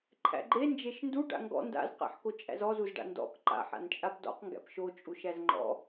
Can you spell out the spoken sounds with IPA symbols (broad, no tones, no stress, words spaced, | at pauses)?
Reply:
ǃʰæ̰ɡ͡ǃe nd͡ʒeʃndu ɖa̰ŋɡɔ̰ nda̰zqæ̰ħkot͡ʃʼæ̰z ɔzuz ɖa̰ndɔ̰k ǃa̰ħa̰nt͡ʃʼap dɔ̰qŋɡæ̰p ʃot͡ʃʼuʃæz ŋ͡ǃɔ̰